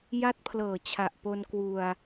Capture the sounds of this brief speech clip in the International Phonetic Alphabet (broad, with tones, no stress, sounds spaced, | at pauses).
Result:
j a˦˥ t̚ pʰ l ɤː˨˩ t͡ɕʰ a˨˩ ʔ p o˧ n k w u˧ a̯